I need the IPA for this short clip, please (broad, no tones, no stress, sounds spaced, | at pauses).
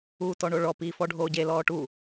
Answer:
uː t ɔ ɳ o ɭ ɔ p iː f ɔ ɖʱ oː ɟ e l ɔː ʈ u